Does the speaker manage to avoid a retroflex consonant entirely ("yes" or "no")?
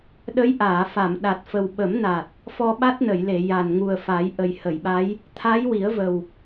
yes